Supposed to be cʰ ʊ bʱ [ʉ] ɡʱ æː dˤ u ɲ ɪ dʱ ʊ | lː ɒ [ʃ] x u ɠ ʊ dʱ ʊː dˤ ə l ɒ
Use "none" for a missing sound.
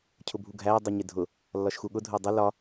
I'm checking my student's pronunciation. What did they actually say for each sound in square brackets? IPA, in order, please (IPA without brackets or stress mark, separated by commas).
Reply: u, ʃ